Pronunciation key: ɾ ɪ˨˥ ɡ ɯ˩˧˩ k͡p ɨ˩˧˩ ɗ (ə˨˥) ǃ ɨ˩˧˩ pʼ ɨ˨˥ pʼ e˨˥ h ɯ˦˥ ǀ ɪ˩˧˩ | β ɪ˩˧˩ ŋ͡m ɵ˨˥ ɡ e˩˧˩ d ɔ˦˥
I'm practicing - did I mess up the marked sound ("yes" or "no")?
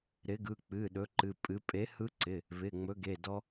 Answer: yes